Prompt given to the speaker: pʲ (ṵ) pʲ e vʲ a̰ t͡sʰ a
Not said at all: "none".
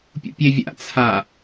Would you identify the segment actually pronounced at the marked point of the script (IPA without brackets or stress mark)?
ṵ